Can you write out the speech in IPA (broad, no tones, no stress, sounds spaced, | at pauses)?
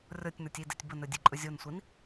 rʲ ɔ tʲ n ə˞ tʲ i d e tʲ b ə n ɵ dʲ e ǃʼ ɵ zʲ o n sʷ i n